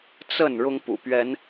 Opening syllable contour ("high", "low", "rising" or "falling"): falling